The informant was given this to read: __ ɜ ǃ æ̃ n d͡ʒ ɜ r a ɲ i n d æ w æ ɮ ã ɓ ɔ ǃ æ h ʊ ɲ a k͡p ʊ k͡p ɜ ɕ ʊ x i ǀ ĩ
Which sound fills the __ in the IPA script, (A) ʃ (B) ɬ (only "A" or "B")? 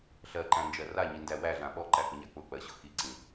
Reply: B